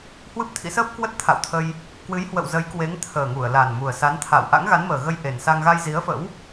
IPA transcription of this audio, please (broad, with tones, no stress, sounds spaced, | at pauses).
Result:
h w ɨ˦˥ p̚ t̪ʰ ḭ˧˥ s əː˦˥ p̚ k w ə˦˥ t̚ t̪ʰ a̰˧˨ w t̪ʰ ə˧ j | k w ɨ˨˦ j h w ə̰˧˨ w z ə˨˦ j k w e˨˦ ŋ t̪ʰ əː˨˩ ŋ u˧˩ ə̯ l a˨˩ n m u˨˩ ə̯ s a˨˦ n t̪ʰ a̰˧˨ w ʔ a̰˧˥ ŋ ɣ a˨˦ n m əː˨˩ ɣ ə˧ j ʔ e˨˩ n s a˧ ŋ ɣ a˧ j z i˨˦ ə̯ f ə̰˧˥ w